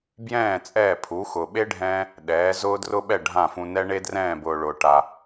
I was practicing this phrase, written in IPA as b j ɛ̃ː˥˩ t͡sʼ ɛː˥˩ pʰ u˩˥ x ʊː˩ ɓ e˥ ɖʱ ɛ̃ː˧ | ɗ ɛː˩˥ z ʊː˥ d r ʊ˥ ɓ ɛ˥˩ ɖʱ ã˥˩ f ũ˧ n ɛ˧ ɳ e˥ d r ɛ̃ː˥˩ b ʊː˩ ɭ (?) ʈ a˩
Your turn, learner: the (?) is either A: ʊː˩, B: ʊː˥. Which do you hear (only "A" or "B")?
A